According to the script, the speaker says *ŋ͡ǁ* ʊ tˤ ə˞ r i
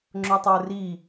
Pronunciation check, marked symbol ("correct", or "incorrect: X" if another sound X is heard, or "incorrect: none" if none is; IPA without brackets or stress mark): correct